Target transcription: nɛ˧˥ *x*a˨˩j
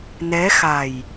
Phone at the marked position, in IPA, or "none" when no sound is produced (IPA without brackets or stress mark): x